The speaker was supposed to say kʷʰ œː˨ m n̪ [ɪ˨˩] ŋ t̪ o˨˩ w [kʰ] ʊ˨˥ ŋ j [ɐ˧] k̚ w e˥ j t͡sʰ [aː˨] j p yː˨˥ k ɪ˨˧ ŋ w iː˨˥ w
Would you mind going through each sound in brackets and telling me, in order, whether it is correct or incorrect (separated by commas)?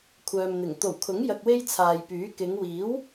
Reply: correct, correct, correct, correct